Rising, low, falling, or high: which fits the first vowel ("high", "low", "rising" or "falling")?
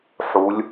rising